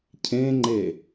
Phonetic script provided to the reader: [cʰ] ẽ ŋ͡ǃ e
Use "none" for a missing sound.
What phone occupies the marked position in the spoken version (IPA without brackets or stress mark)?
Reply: cʰ